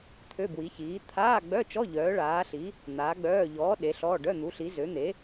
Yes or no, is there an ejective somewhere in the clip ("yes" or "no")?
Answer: no